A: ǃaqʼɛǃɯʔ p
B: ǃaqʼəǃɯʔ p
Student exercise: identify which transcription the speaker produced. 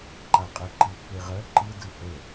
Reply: A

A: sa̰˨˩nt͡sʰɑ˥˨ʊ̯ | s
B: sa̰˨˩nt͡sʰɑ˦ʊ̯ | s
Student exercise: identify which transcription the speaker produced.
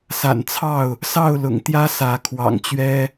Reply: A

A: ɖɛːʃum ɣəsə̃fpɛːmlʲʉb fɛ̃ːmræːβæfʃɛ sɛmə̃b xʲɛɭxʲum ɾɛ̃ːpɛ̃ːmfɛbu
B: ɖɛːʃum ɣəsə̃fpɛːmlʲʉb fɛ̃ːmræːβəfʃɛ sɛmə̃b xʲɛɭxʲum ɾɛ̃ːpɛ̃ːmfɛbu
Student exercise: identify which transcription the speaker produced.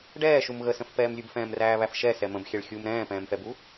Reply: A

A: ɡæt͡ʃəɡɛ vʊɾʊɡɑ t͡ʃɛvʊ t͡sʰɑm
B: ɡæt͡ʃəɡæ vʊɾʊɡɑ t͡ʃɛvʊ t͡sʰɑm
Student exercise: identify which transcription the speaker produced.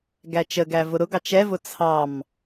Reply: B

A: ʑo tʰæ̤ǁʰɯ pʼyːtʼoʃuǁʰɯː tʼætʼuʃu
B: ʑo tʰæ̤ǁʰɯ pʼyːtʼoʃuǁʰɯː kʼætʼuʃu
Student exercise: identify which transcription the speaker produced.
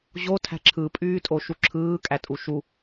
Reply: B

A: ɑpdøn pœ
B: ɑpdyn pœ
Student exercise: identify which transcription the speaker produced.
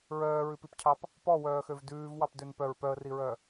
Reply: A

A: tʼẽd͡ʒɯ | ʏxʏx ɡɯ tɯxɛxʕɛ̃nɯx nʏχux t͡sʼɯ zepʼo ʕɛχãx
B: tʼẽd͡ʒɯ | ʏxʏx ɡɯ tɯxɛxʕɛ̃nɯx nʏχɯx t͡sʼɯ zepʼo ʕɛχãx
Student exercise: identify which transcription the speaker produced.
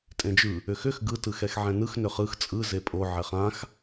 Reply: B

